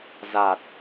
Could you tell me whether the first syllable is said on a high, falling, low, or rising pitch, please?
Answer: low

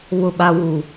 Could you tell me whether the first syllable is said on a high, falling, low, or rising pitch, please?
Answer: low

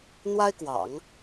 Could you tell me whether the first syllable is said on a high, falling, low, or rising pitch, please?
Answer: high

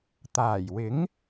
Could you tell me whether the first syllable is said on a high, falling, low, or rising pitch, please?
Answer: low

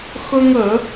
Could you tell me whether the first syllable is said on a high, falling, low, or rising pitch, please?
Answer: high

